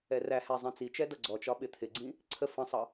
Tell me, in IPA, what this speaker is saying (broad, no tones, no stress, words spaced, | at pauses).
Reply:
ɛræhæ zˤĩt͡sit͡ʃɛ dʌɡ͡ǀɔt͡ʃɒ ɓɪt̪ʰɪɡ͡ǀĩ | ǀʰə fə̃sˤʌ